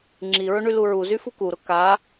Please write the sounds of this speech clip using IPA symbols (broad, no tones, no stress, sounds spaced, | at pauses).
ŋ͡ǁ i ɹ ʊ ɳ y l u ɹ u z y f u k u ɾ ʊ k a